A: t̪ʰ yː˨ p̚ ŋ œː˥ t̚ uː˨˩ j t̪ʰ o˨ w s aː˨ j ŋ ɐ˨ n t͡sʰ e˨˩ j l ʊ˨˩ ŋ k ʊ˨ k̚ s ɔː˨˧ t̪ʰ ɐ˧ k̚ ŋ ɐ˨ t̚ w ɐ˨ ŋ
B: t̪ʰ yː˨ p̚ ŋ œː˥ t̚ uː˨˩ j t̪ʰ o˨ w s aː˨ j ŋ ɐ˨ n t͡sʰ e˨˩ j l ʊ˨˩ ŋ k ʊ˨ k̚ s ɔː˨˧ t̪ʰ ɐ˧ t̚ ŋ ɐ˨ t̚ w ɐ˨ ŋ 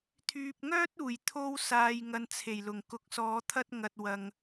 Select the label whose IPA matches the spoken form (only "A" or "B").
B